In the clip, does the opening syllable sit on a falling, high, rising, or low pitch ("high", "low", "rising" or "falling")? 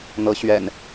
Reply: rising